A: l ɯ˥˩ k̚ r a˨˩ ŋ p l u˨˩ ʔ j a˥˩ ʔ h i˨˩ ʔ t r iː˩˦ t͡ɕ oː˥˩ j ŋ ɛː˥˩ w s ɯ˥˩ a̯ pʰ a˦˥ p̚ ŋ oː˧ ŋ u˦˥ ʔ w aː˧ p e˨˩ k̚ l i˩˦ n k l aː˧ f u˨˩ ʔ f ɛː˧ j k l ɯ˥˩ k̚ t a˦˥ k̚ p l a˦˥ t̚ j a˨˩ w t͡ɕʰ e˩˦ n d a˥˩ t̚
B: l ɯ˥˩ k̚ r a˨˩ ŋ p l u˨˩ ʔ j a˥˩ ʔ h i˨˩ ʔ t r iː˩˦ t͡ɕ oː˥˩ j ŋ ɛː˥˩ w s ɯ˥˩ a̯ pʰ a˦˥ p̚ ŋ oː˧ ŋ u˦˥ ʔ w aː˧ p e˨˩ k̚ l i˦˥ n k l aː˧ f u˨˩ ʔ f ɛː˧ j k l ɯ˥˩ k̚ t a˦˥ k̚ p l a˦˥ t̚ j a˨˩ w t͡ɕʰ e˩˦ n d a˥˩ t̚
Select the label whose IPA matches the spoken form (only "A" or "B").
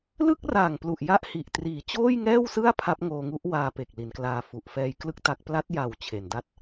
A